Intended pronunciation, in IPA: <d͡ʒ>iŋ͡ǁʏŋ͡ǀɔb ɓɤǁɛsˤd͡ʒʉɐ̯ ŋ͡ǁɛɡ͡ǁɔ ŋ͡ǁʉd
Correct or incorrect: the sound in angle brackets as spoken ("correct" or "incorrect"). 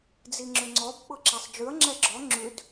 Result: incorrect